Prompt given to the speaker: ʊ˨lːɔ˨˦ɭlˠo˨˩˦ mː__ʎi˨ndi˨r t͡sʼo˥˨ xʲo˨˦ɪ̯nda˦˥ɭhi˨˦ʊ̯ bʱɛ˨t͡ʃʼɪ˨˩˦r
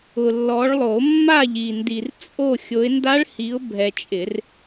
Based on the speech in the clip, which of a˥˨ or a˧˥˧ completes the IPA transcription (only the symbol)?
a˥˨